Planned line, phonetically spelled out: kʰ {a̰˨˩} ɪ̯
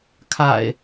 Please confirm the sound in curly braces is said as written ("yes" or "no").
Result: yes